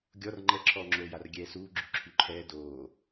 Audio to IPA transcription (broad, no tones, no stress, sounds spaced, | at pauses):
ɡʲ ɔ r ŋ͡ǃ ɛ ǁʰ ɔː ŋ͡ǁ oː j a r ɡʲ ɛː s uː ɡ͡ǁ y ǁʰ y ǃʰ ɛː d oː